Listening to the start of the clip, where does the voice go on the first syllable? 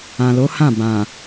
low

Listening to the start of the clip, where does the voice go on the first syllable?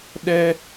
high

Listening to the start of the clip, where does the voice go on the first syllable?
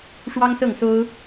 high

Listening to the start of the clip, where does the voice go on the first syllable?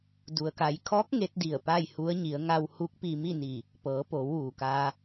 low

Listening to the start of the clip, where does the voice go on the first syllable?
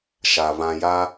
low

